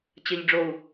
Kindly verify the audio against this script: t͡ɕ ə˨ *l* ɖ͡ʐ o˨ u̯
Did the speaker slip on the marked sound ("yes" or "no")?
yes